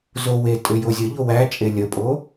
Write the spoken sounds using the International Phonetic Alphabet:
z o w e tʼ ʏ j o zʲ ə ʎ o w æ t͡ʃʼ e lʲ ə pʼ o

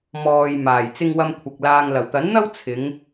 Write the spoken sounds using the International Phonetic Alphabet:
m ɔː˨ j m aː˨˩ j t͡s ɪ˧ ŋ w ɐ˧ m kʷʰ ɐ˨ k̚ l aː˨ ŋ l ɐ˨˩ w t̪ ɐ˨˥ n n̪ ɐ˥ w t͡sʰ ɪ˨˧ ŋ

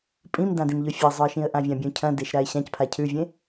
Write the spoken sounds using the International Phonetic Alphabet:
pʼ ĩ m d ã d ĩ m ʎ ɵ fʲ ɐ zˤ ɵ ə̯ ʃ ĩ ə̯ ʔ ã vʲ ã bʲ ũ cʰ ɐ̃ d e ʃ ɾ a ɪ̯ ɕ ã c pʰ a cʰ ʉ vʲ ẽ

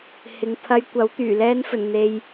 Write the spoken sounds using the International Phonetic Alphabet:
h ɪ˨ ŋ pʰ ɐ˧ j kʷ ɐ˨˥ w t̪ yː˨˩ l ɛː˧ n f ɵ˨˩ n n̪ e˨ j

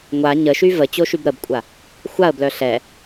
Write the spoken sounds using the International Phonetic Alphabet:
ŋʷ a ɲ ə ʃ y v ə t͡ɕ o ʃ y b ɾ ə b kʷʼ a | xʷ a ə̯ b l œ ɬ ɛ

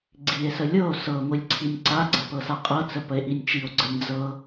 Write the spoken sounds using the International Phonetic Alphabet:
ɡ͡ǀ i e̯ s ə lʲ ɤ o̯ s ɤ ŋʷ i lʲ ǀʰ i nʲ ǀ a ɡ͡ǀ ə p ɤ s a qʼ ɤ t͡s ə p ə e̯ ʔ i nʲ t͡ʃ i o̯ ɡ͡ǀ ə nʲ d͡z ɤ

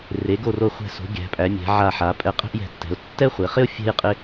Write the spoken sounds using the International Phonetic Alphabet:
r e˩˧ ɡ o˧˩ r o˧˩ χʷ ɛ̤˧˩ s o̤˩˧ ɡʲ æ̤˩˧ pʼ æ˩˧ mʲ æ̤˩˧ ʕ a˧˩ ħ a˩˧ pʼ ɛ˧˩ qʼ ɛ̤˥ ʔ j ɛ̤˧˩ tː ɛ̤˩˧ ʊ̯ tː ɛ˥ χʷ e˩˧ χ ɪ˥ ʊ̯ fʲ ɛ̤˥ j qʼ ɪ˥

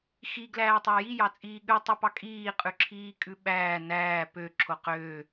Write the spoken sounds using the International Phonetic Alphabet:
x i ɡ l æː tˤ æ j i j ɑ t͡sʼ iː ɠ ʉ tˤ ʉ p ɑ kʼ iː qʼ ʉ ǁʰ iː kʼ ʉ ɓ æː n æː p ø ǁʰ o q øː

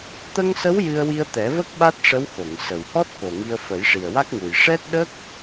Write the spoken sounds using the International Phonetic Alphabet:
t̪ ə˧ ŋ s ə˧˥ w j ɨ˧ ə̯ w i˧ ə̯ t̪ ɛ˨˩˦ v ə˦˥ k̚ ɓ a˦˥ t̚ ʂ ə˧˥ w x o˨˩˨ ŋ s ə˨˩ w h ɔ˦˥ t̚ k o˨˩ ŋ i˧ ə̯ f ə˨˩˦ j ʂ i˨˩ ə̯ w a˦˥ k̚ ŋ u˨˩ j ʂ ɛ˦˥ t̚ ɗ ə˦˥ k̚

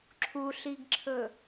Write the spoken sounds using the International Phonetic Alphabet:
ǁʰ u ɬ i ɡ ǁʰ ɵ

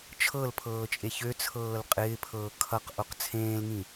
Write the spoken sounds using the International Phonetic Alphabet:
t͡ʃʰ ɤ l pʰ ɤː t͡ʃʼ e ç ø t͡sʰ ɤː l qʼ ɪː pʰ ɤː kʰ ʌ q ʔ o q t͡sʰ ẽː l ŋ ĩ

